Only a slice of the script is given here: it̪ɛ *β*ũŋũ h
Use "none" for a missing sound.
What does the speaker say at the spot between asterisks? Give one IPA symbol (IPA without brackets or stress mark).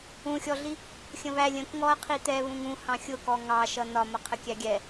β